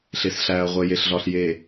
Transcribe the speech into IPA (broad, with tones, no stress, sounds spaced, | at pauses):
ɬ e˨ s ɬ æː˨ ɐ̯ ʁʷ e˨ j e˨ ɬ ɮ ɒ˨ ɬ j e˨